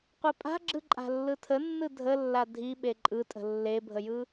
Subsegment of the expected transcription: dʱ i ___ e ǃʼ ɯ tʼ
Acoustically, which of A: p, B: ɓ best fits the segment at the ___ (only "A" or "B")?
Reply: B